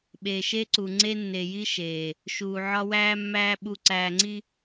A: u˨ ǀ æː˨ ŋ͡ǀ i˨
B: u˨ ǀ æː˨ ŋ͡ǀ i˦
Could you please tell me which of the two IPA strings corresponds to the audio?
B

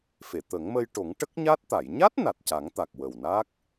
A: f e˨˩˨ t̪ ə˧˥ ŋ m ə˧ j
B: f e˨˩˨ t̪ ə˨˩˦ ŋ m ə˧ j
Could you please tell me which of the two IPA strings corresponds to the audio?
B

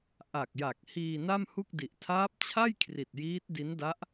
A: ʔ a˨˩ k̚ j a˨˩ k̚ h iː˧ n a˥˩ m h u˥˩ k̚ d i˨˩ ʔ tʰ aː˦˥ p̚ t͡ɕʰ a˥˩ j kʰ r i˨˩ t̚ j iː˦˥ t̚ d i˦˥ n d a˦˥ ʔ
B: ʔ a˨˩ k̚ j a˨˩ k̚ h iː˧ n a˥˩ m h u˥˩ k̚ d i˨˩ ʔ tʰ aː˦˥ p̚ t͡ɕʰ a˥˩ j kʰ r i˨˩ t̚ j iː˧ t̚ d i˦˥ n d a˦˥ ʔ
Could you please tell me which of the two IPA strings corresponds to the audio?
A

